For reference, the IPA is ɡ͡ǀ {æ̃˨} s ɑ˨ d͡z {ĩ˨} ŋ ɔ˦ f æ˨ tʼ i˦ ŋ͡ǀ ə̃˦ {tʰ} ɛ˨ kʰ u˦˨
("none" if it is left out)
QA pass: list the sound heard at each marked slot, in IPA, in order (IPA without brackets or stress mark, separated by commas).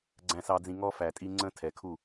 æ̃˨, ĩ˨, tʰ